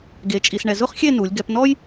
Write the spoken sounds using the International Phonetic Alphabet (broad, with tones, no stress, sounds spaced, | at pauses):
ɡ e˧ t͡ʃʼ i˧ s ɳ ɛ˧ z ʊ˥ χ xʲ e˥˧ n u˩˧ lʲ ɡ ɛ˧ p n ɔ˥ j